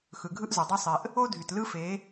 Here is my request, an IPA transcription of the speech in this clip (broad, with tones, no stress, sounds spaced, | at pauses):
x ɯ˨ ɡʱ ɯ˦ ʔ z o˨ dˤ o˦ sˤ e˨ ʔ | o˦ dʱ y˨ t l ɯ˦ f e˨˦